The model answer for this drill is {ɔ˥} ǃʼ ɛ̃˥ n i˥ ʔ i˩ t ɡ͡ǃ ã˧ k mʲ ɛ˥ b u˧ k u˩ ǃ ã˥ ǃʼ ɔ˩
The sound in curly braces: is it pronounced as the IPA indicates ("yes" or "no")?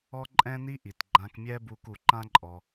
yes